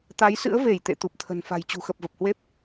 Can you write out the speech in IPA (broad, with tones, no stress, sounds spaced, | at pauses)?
t̪ a˨˦ j s ɨ̰˧˥ ə̯ v e˧˩ j t̪ ḛ˧˨ t̪ u˨˩ p̚ t̪ʰ ə̤˨˩ n f a̤˨˩ j t͡ɕ ṳ˨˩ x ə˨˩ p̚ v ə˨˩ p̚ h w e˦˥ p̚